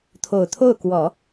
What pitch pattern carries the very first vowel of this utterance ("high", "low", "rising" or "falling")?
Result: low